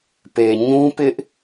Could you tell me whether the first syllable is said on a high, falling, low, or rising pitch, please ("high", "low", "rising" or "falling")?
low